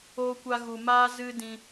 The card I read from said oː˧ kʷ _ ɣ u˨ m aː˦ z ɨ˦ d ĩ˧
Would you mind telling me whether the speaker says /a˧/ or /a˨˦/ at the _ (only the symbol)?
a˧